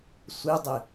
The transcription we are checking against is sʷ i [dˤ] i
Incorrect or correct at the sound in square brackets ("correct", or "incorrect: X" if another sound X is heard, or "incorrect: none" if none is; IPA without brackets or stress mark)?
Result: correct